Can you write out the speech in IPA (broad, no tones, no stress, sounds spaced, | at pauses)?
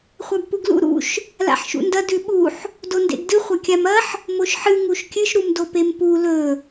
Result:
χʷ a b p u ɡ l ṵ ɾ ṵ ʃ | l a̰ ħ ʃ ṵ n d ɐ d ʉ ɓ u ħ | d o n d ḛ ɡ d ɨ χʷ ɐ kʲ a m ɐ ħ | m o ʃ ħ ɨ ŋ u ʃ kʲ ɨ ʃ ɾ u m d o p e m p u l ɵ